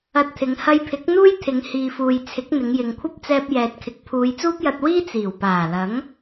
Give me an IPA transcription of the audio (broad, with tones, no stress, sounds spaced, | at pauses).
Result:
ɐ˧ t̚ t̪ʰ ɪ˨˧ ŋ h ɐ˧ j pʰ ɪ˨˥ k̚ n̪ uː˥ j t̪ʰ ɪ˨˧ ŋ h iː˨ f uː˨ j t͡sʰ ɪ˨˥ k̚ n̪ ɪ˨˧ ŋ j ɪ˨ ŋ kʷʰ ɐ˥ p̚ t͡s ɛː˧ p̚ j ɛː˨ t̚ kʰ ɪ˨ k̚ pʰ uː˨˧ j t͡s uː˥ p̚ j ɐ˧ t̚ w iː˥ t͡s iː˨˩ w p aː˨˩ l ɐ˨˥ ŋ